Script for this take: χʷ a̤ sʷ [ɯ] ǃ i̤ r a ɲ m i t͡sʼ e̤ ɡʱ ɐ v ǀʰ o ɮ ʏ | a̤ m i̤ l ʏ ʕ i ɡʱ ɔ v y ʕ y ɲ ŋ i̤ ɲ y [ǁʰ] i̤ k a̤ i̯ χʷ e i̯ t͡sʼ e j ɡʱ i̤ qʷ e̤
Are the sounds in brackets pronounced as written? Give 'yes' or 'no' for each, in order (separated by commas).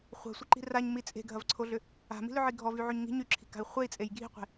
no, yes